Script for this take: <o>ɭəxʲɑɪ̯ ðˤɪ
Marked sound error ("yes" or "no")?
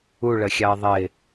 yes